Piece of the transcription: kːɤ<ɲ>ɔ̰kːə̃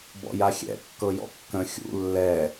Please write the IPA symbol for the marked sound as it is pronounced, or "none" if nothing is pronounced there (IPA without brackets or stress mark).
j